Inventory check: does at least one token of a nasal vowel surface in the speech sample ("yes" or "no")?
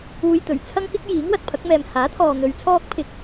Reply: no